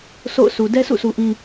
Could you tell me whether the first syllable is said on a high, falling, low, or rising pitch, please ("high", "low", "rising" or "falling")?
falling